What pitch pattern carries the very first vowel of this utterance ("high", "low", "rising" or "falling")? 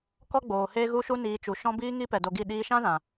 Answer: high